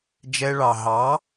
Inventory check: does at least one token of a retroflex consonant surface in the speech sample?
yes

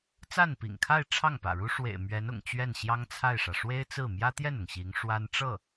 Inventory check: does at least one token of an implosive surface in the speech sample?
no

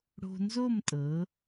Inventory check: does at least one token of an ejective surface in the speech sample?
yes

